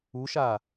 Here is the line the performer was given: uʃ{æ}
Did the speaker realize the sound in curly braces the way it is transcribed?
no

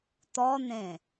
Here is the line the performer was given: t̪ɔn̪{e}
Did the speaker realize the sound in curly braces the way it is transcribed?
no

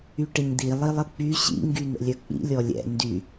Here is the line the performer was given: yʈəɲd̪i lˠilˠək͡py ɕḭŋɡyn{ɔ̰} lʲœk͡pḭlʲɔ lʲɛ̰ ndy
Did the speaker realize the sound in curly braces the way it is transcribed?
no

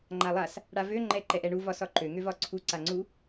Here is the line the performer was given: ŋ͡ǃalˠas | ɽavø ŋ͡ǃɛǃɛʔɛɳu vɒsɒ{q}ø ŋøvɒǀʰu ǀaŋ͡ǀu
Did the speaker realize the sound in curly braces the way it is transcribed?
no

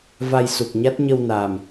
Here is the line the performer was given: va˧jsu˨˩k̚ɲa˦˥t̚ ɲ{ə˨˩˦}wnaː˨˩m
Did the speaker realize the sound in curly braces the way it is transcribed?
no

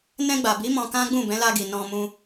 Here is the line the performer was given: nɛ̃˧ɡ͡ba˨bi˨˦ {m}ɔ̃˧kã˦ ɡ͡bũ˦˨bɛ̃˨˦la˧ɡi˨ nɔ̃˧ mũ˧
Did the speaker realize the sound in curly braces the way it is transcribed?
yes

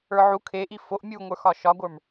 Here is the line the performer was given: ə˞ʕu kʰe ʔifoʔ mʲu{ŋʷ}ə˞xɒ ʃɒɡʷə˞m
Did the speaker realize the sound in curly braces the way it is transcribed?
yes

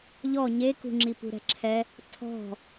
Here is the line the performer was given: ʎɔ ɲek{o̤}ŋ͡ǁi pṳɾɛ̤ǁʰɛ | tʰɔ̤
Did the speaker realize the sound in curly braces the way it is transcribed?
no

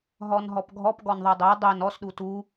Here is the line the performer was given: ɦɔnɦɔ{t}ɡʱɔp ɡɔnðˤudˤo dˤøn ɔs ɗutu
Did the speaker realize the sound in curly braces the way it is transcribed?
no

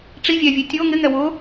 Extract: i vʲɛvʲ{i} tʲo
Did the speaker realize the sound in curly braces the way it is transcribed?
no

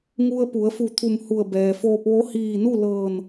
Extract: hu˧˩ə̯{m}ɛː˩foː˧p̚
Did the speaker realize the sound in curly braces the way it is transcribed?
no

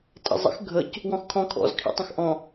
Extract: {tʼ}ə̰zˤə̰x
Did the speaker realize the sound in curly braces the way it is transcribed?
yes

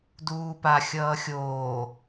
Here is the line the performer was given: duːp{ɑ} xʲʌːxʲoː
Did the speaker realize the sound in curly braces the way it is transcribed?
no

